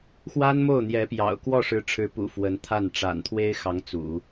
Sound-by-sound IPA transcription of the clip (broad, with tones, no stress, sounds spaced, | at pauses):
x w a˥ n m o˥˩ ʊ̯ n̪ j ɛ˧˥ p j ɑ̰˨˩ ʊ̯ k w ɔ˥˩ ʂ ɻ̩˧˥ ʈ͡ʂʰ ɻ̩˧˥ p ṵ˨˩ f w ə˧˥ n t̪ʰ a˥˩ n ʈ͡ʂ a̰˨˩ n t̪ʰ w e˥ ɪ̯ x ɑ˧˥ ŋ t͡s ṵ˨˩˦